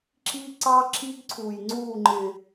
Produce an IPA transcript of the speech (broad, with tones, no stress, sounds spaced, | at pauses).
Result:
ǁ i˦ ǀ ɑ˦ ǁʰ i˦ ɡ ǀʰ u˨ j ŋ͡ǀ u˦˨ ŋ͡ǃ ɪ˨